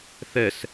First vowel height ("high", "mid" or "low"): mid